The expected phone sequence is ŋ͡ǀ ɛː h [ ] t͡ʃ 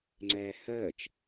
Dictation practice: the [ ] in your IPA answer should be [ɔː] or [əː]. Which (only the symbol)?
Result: əː